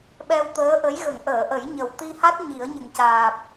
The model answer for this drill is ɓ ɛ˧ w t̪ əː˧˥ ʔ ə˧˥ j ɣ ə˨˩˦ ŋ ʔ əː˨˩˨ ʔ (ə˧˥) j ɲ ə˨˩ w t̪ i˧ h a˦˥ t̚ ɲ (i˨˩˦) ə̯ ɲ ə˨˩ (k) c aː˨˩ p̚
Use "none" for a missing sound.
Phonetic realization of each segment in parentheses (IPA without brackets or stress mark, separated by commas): ə˨˩˦, i˨˩˦, ŋ